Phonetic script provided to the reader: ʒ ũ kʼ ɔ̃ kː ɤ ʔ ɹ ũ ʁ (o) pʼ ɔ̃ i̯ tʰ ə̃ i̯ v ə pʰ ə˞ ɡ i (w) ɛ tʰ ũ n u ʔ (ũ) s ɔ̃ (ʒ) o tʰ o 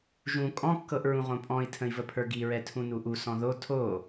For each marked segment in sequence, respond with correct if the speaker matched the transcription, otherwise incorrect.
incorrect, incorrect, incorrect, incorrect

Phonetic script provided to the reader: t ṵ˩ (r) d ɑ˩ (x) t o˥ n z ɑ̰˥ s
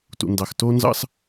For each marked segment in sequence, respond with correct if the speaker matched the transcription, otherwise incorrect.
incorrect, correct

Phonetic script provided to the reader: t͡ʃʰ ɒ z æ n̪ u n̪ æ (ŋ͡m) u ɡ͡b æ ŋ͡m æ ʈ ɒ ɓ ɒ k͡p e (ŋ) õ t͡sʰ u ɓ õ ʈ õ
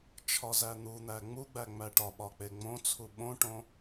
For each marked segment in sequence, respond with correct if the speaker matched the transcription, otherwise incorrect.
correct, incorrect

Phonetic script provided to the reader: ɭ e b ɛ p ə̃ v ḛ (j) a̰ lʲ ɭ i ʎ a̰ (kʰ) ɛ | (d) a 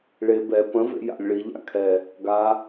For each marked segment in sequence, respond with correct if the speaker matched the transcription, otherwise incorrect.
correct, correct, incorrect

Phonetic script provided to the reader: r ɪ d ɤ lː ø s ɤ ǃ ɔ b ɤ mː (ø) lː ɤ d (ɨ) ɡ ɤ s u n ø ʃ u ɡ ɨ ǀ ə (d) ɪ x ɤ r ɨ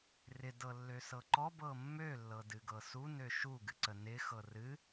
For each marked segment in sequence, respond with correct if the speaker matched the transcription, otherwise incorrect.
correct, correct, incorrect

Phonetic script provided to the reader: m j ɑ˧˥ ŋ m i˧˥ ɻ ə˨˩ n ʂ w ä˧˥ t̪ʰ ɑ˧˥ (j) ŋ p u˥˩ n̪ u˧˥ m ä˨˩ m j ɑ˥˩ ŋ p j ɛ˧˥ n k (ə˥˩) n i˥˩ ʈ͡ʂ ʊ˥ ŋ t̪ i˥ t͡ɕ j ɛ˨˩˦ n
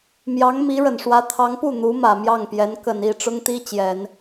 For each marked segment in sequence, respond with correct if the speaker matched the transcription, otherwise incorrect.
incorrect, incorrect

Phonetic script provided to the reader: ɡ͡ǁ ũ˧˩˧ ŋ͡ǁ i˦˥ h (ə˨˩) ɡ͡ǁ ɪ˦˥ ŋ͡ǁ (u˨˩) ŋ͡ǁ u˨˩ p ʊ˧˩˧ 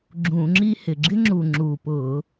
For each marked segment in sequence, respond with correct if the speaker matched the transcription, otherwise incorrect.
incorrect, correct

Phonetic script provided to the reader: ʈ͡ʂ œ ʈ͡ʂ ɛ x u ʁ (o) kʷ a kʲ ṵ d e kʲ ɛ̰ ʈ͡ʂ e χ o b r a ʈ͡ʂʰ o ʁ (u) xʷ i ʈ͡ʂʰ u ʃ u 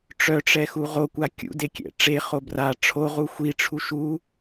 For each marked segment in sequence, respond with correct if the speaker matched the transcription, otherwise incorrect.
correct, correct

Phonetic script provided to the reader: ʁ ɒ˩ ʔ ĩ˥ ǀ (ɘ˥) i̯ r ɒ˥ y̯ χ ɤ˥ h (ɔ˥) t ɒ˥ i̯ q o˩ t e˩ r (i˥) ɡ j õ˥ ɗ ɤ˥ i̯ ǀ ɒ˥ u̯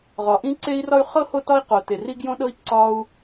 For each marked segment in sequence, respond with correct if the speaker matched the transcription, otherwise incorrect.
incorrect, incorrect, correct

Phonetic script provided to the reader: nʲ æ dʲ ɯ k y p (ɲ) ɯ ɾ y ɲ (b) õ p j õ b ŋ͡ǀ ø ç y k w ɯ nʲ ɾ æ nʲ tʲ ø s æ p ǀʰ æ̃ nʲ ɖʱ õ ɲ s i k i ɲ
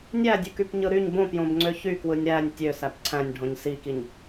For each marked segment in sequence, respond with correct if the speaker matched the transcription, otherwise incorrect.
correct, correct

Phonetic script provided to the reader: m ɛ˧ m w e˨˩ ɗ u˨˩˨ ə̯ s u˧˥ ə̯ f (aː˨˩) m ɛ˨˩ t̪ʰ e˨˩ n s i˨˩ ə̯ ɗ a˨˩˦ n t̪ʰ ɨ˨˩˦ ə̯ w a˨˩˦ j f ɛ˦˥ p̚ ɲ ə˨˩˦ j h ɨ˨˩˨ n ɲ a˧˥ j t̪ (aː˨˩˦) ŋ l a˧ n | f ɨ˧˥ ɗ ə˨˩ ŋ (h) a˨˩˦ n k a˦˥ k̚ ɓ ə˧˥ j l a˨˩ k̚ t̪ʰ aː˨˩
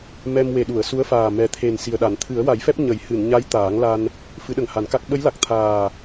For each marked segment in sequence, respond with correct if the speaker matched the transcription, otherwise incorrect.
correct, correct, correct

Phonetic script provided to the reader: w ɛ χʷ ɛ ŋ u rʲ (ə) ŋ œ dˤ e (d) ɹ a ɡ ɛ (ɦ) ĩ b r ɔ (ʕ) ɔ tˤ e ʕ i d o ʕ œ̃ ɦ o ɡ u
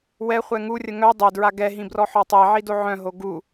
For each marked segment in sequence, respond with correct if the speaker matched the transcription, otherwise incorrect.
correct, correct, correct, incorrect

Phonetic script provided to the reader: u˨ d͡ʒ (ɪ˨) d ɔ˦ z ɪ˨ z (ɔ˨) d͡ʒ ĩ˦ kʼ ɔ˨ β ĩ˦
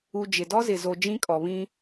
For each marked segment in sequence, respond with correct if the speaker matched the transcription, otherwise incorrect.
correct, incorrect

